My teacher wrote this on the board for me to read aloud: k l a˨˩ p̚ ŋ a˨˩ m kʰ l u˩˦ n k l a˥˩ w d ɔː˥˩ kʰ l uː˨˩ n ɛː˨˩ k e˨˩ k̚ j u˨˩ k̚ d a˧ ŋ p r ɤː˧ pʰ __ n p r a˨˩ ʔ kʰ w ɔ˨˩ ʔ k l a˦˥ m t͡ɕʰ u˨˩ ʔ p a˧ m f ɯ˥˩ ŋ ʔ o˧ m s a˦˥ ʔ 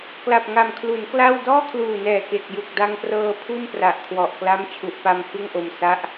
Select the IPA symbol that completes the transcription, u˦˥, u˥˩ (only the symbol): u˥˩